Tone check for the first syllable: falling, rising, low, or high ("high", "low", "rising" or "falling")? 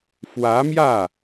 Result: rising